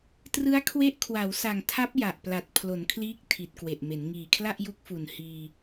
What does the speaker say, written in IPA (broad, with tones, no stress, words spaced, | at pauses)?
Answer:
trɯ˦˥a̯ kʰwe˦˥ʔ kʰwa˩˦wsa˨˩ŋtʰa˦˥p̚ ja˨˩ʔpla˨˩t̚ pʰlo˩˦nkʰliː˦˥k̚ tʰi˨˩t̚kwe˨˩ʔme˩˦n ŋiː˨˩kʰla˥˩ʔju˦˥k̚fu˨˩n hiː˧